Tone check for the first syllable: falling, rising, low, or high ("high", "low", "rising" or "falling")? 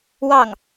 falling